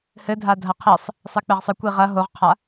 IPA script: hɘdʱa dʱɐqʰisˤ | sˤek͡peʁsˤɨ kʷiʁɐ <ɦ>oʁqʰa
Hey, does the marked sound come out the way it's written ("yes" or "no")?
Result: yes